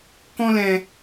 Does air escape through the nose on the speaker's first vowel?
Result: yes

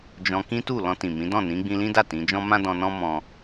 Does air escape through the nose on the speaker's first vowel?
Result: yes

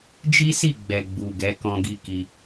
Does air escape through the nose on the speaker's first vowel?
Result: no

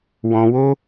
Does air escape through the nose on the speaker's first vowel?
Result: yes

